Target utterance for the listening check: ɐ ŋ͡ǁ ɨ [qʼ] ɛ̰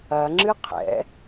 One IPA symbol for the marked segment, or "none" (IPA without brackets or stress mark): qʰ